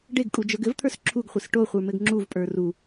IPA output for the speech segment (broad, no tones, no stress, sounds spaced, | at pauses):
ɖ e ɡ kʼ u d͡ʒ ə˞ ɡ ɘ v t̪ʰ ə˞ s ǁʰ u ɡ χʷ e s ʈ o χʷ ə˞ m ɘ ɡ ŋ͡ǁ u v pʼ ə˞ r u